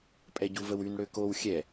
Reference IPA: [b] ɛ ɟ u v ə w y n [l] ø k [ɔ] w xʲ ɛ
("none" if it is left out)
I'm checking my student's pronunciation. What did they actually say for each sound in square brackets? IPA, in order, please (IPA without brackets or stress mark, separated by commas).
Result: pʼ, ɽ, o